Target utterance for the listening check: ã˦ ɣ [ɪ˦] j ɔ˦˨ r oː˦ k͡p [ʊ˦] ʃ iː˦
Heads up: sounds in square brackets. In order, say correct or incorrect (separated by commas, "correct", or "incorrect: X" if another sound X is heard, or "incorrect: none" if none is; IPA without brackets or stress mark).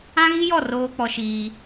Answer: incorrect: i˦, incorrect: ɔ˦